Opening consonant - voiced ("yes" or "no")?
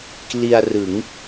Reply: no